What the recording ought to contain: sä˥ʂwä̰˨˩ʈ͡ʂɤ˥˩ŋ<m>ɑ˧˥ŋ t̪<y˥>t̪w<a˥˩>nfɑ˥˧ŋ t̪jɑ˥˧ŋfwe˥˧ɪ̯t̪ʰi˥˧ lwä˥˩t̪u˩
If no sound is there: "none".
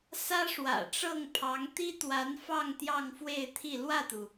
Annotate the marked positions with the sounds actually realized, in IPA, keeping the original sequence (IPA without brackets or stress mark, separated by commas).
pʰ, i˥, a˧˥